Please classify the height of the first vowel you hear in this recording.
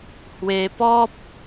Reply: mid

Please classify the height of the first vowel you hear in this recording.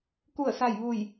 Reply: high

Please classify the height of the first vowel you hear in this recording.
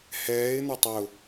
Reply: mid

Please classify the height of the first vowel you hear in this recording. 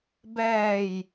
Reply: mid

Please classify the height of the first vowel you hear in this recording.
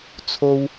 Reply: mid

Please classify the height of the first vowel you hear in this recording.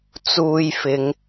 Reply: high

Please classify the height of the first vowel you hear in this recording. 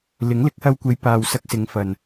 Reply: high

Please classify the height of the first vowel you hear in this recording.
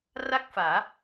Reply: low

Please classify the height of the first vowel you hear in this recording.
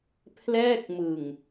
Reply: mid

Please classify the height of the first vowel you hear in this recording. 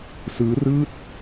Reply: high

